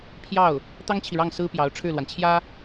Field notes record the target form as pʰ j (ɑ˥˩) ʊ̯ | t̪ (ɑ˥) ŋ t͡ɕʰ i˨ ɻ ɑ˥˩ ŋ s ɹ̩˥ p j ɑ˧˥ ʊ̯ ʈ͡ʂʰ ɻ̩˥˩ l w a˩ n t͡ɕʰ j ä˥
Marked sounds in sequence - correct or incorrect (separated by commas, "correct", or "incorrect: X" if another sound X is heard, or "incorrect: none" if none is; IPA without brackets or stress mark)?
correct, correct